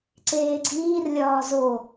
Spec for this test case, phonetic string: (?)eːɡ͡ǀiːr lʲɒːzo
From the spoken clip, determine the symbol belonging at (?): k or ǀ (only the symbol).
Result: ǀ